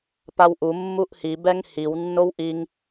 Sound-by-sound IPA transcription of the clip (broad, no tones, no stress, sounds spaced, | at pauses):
p a w ʔ u mː u ʔ h i b ɛ ŋ h i w nː o w ʔ i ŋ